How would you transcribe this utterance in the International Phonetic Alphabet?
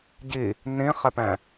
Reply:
ɟ i | n ĩ χ ɛ p ɛ̃

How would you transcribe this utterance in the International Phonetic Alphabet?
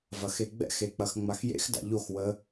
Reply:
v ɐ x e ɡ͡b ɛ̰ x e k͡p ɐ x ŋ͡m a x j ḛ x d a̰ ʎ o x w ə

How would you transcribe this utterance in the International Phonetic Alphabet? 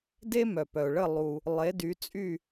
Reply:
d e˥ m œ˨ p œ˨ ʊ̯ ɭ ə˥˨ lˠ u˨ | lˠ e˨˥ d y˨˥ t͡sʼ y˥˨

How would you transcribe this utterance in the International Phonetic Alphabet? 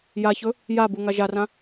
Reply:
j a ç ɵ | j a b u ŋ a ʒ a r ã

